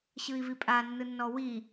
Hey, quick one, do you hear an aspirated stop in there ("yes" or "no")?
no